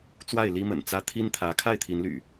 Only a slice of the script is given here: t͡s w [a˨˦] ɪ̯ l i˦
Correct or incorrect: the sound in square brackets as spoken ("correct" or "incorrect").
incorrect